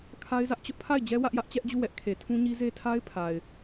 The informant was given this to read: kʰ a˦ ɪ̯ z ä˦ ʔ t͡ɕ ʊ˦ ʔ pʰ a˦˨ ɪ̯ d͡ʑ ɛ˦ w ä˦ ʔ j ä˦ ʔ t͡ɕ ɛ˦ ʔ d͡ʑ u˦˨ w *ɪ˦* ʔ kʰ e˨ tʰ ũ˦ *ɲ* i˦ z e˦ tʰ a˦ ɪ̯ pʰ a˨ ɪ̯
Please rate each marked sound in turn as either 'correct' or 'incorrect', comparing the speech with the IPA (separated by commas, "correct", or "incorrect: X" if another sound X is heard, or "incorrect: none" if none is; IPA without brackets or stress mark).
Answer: incorrect: ɛ˦, correct